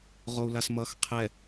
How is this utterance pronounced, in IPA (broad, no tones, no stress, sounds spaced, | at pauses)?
ʁ o u̯ l a s m ʌ x qʰ ɛ